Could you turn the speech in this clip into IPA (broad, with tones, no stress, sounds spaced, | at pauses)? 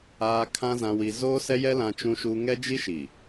aː˦ kʰ ã˦ z ã˦ w i˦ z oː˦ s ɛ˦ j ɛ˦ l ã˦ t͡ʃ ũ˦ ʃ u˦ ŋ ɛ˦ d͡ʒ i˦ ʃ i˨